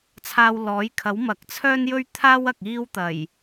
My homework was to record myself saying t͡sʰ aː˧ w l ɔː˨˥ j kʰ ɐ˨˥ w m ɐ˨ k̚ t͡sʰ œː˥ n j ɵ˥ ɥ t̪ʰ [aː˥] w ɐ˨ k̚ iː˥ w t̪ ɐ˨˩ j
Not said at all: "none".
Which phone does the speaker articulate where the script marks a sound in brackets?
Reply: aː˥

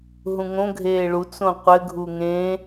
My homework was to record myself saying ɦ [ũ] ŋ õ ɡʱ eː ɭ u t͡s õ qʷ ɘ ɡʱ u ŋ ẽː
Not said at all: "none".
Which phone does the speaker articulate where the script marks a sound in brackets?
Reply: ũ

